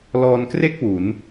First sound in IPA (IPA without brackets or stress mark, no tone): l